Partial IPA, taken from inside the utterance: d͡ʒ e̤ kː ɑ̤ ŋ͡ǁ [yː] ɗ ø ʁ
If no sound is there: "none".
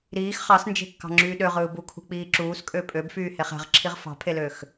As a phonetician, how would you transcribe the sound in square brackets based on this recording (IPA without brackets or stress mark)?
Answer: yː